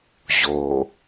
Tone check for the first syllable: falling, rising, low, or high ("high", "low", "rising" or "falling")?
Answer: low